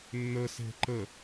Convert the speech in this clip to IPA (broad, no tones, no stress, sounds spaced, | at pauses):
nː ə s e̤ ǃ ə